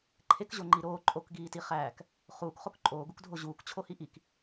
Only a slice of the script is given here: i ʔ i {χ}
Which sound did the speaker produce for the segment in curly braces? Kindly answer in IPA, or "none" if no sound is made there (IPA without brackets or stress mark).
k